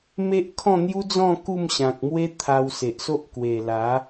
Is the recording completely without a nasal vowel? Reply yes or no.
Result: no